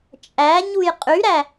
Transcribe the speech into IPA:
t͡ʃʼ æ ɲ u j qʼ y ɾ æ

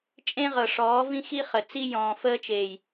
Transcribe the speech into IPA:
t͡ʃʼ ẽ˦ ʁ ɤ˨ ʂ ɔː˨˦ v ĩ˦ x i˦ χ ə˨ t͡s i˦ j ɔ̃ː˨ f əː˦ t͡ʃ eː˨ j

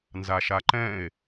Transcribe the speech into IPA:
n z a ʃ a ǃ ɛ̃ e̯

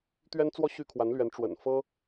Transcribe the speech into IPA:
t̪ ɥ ɛ˥ n t͡s w ɔ˥ ɕ y˥ kʰ w a˧˥ n l ɥ ɛ˧˥ n ʈ͡ʂ w ə̰˨˩ n f ɤ˥

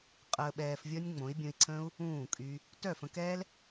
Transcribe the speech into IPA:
qʼ əː˧ ɓ ɛː˧ f vʲ ɔ˦ nʲ ŋ͡m õ˨˦ i̯ bʲ õ˧ i̯ ǀʰ ə̃ː˦ u̯ | ũː˦˨ kʼ y˧ | t œ˦˨ f ə̃˧ k ɛː˦ l

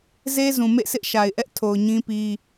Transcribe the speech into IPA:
z e˦ z ũ˨ m ḛ˦˨ sʰ ɪ˦ ʔ ʃ a˨ ɪ̯ ʔ ɛ˦ ʔ tʰ o˨ ʊ̯ ɲ ĩ˦ p i˦

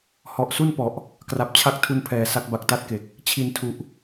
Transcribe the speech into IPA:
h ɔ˨˩ ʔ s u˥˩ n p ɔ˨˩ ʔ | k r a˨˩ p̚ t͡ɕʰ a˥˩ k̚ tʰ u˧ n pʰ ɛː˨˩ s a˦˥ k̚ b a˨˩ k̚ t a˥˩ t̚ k e˨˩ k̚ | t͡ɕʰ i˨˩ n tʰ u˨˩ ʔ

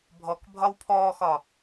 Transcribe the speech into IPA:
bʱ ɔ k bʱ ɒ w pʰ ɔː x ɒ

